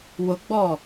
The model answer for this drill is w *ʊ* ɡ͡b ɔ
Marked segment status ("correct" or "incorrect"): correct